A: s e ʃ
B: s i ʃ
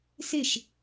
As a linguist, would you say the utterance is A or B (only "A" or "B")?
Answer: A